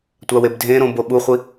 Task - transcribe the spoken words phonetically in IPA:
tʷ a w e b dʱ ẽ ɾ õ b o ɓ u χʷ i

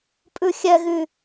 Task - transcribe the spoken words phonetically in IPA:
pʼ ʉ xʲ ɛ ɣ y

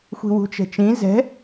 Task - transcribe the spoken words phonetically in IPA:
xʷ i̤ w ṳ t͡ʃ ɛ̤ t͡ʃ ĩ z ɛ̤

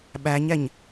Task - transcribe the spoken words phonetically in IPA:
ɓ æ ɲ ɛ ɲ

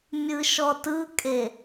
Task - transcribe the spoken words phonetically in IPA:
mʲ ɯ ʃ ɔ t ɯ kʼ e

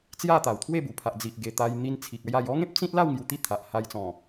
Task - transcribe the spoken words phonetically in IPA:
t͡s j a˥˧ t̪ a˨˩ w t̪ʰ w e˥˧ b u˨˩ pʰ a˨ ʔ d͡z i˨ ʔ ɡ e˨˩ t̪ a˧ j n̪ i˧ n t͡sʰ i˨ k̚ a˦ j a˧ j ɔ˦ ŋ ẽ˦ p̚ t͡s ĩ˦ t̚ l a˥˧ w ŋ j u˧ t̪ i˥˧ t̪ʰ a˨ ʔ h a˧ j t͡s ɔ̃˨˩

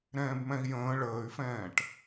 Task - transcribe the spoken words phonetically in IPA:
ɾ ɛ̃ː b m ɛ̃ i̯ j ə̃ː ɭ əː y̯ f ɛ̃ː ʈ

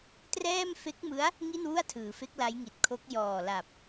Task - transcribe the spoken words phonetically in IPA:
t r ɛː˥˩ m f e˦˥ k̚ m ɯ˦˥ a̯ | ŋ i˥˩ n w u˥˩ a̯ tʰ ɯː˩˦ f e˦˥ k̚ l a˦˥ j ŋ i˨˩ t̚ kʰ o˦˥ k̚ j ɔː˨˩ l a˨˩ p̚

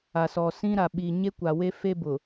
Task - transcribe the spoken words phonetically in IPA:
a˨ s ɔ˨ s ĩ˦ ɾ a˨ ɓ i˨ ɲ e˦ kʷ a˨ w e˦ f e˦ b ʊ˨

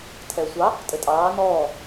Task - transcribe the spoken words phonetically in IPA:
tʰ ɛː sʷ ɑ | tʼ ɘ tʼ ɑː n ɔː

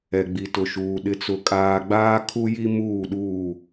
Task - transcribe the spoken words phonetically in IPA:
ɛ˨ ɡ͡b i˨ t ʊ˨ ʃ uː˨ ɗ ɪ˨ t͡s ʊ˨ kʼ aː˨ ɡ͡b aː˦ kʰ u˦ j i˦ m uː˦˨ ɗ uː˦˨

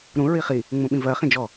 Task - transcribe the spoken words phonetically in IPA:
ɾ ũ ɹ i χ i | ŋ͡m ũ ɓ ĩ v ɜ χ ĩ d͡ʒ ɔ

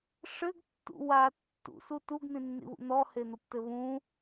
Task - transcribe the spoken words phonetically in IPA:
ʂ ɘ ɡ tː ṵ w a tː ṵ s u t u ɡ n̪ ĩ nː ḭ β ṵ n̪ ɔ h e n̪ o p t ɘ β ũ

